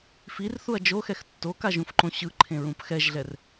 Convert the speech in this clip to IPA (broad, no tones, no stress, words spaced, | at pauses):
firθuɐ̯ d͡ʒoxɛx tːokaʒũfǃõ ɕɯǃʰẽɹũp xɛʒɮɛr